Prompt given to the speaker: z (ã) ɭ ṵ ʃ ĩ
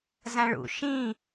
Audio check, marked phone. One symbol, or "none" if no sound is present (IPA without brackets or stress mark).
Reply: ã